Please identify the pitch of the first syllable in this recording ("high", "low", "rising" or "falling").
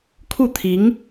falling